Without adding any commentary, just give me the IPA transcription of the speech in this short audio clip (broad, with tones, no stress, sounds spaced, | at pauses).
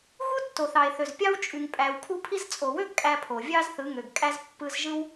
ɣ u˦ tː o˨ θ ɑ˨ e̯ θ ø˨ z pʲ ɑ˦ w t͡ʃʼ y˧ ŋ pʼ æ˧ w kʰ u˦ pʰ i˦ z t͡sʼ o˨ w ø˦ ɡ kʼ æ˧ pʰ o˨ vʲ ɑ˦ z θ ɯ˨˦ ŋ ø˨ ɡ kʼ æ˧ z pː ɯ˧ z ʒ ɯ˦ w